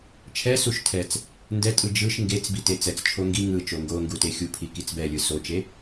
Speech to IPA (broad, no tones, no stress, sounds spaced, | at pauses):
t͡ʃʰ ɛ s u ʃ tʰ ɛ t͡s | n d ɛ tʼ ɯ d͡ʒ ɯ ʃ ŋ ɡ e t͡s b i t e t͡s ɛ t͡s t͡ʃʰ o ŋ ɡ i ŋ ɯ t͡ʃ o ŋ ɡ o ŋ ɡ u t e xʲ u pʰ i k i t͡s b ɛ lʲ ɯ s o t͡ʃ e